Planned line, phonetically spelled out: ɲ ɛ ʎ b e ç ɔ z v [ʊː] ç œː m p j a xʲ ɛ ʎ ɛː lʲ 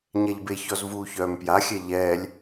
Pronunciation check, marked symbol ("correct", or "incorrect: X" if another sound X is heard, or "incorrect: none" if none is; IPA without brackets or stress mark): incorrect: uː